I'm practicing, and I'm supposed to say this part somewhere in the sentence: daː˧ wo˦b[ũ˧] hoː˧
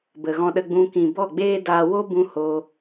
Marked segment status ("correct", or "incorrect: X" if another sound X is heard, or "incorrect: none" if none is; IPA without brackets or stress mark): correct